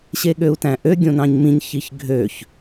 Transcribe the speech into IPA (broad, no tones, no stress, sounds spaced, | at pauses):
ɕ e ɠ ø u̯ t æ̃ ʔ ø ɡʲ õ n ɑ̃ ɲ m ĩ ɲ ç i ç ɡʱ ø ç